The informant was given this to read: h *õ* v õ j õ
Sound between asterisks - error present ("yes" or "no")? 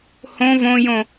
no